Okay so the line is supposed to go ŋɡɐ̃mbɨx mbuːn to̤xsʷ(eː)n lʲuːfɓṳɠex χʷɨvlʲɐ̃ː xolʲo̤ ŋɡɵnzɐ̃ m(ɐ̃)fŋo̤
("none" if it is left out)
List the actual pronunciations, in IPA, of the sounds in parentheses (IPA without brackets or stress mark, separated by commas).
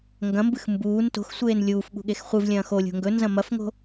eː, ɐ